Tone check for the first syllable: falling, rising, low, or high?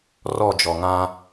falling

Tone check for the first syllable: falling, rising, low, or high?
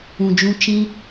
low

